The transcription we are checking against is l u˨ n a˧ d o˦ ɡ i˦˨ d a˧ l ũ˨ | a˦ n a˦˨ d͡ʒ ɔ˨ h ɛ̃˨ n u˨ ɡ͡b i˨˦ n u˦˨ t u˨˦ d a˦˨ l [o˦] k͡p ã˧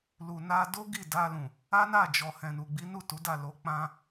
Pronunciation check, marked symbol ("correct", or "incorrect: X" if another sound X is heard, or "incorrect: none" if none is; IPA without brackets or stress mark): incorrect: o˧